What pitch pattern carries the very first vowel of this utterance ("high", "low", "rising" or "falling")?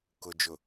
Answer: low